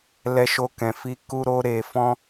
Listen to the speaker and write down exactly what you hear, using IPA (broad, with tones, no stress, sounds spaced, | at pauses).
l ɛ˧ ʃ o˧ k ɛ̃˨ f i˧ k u˦ ɾ o˦ ɾ e˧ f ɔ̃˦